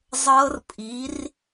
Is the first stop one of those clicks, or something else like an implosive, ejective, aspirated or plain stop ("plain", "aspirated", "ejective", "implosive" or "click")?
ejective